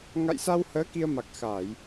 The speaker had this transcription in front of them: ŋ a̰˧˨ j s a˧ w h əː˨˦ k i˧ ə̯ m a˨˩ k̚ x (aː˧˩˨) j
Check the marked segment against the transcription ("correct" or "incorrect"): correct